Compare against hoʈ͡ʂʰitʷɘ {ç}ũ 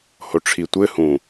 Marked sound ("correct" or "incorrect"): incorrect